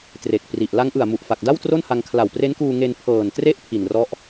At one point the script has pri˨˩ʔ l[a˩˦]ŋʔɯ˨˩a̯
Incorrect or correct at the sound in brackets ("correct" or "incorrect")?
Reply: incorrect